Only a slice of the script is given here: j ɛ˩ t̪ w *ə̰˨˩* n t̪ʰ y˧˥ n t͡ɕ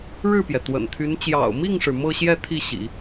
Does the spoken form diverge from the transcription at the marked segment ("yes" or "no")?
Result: no